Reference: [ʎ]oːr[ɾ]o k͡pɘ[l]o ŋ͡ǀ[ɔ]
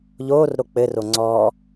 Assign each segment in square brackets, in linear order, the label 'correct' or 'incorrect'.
correct, correct, incorrect, correct

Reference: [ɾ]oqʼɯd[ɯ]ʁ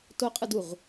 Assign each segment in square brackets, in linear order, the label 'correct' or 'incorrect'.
incorrect, incorrect

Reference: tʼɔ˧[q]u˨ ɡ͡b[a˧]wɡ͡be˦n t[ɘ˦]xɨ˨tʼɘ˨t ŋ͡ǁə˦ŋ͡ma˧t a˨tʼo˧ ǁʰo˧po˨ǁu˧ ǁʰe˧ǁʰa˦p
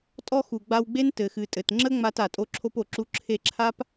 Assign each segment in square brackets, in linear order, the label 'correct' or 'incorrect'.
incorrect, correct, incorrect

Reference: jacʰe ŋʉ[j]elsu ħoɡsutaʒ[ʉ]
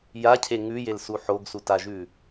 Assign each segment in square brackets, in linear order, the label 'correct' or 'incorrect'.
correct, correct

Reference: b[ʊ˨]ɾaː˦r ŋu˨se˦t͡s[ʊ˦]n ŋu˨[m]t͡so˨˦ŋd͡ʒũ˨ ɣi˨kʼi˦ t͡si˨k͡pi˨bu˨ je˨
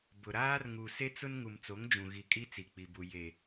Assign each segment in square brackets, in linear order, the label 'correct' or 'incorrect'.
correct, correct, correct

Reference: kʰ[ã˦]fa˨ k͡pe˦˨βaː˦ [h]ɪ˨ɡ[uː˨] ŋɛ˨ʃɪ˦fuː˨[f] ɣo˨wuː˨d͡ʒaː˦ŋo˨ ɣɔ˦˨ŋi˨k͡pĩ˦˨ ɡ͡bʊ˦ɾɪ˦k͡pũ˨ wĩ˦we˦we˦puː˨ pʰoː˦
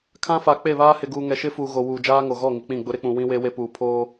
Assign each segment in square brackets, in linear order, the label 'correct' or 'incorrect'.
correct, correct, correct, incorrect

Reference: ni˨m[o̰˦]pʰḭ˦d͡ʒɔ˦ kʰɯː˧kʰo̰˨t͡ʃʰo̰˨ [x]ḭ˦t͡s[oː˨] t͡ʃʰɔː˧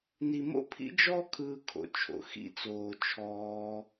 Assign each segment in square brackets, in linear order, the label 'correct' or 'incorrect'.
correct, correct, correct

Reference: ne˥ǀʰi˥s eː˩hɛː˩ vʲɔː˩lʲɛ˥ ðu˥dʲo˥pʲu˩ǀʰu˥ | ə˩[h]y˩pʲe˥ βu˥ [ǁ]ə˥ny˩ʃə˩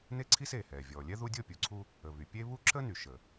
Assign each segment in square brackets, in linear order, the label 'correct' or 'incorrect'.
incorrect, correct

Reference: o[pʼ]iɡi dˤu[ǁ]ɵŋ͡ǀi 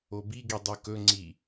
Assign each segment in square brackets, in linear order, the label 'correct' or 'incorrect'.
incorrect, incorrect

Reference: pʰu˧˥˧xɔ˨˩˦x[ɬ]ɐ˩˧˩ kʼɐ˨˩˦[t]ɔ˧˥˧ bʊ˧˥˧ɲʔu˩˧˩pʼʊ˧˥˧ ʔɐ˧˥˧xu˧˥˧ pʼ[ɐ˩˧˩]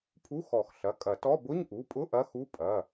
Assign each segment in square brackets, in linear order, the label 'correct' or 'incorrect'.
correct, correct, correct

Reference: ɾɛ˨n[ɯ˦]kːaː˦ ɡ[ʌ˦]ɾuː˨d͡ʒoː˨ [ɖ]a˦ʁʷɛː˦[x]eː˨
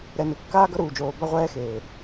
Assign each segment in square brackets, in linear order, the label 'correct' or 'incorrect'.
incorrect, correct, incorrect, correct

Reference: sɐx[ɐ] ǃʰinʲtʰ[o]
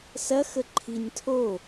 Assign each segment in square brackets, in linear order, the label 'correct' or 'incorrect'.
incorrect, correct

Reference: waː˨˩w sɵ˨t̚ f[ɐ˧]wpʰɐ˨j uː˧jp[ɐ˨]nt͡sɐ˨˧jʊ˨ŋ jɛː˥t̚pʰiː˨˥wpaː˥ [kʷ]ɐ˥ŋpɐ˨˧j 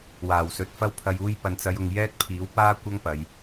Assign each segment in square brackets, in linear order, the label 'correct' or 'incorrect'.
correct, correct, correct

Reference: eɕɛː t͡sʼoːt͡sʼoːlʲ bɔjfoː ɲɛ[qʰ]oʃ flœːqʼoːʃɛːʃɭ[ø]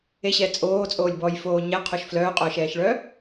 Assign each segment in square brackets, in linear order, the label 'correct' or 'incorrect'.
correct, incorrect

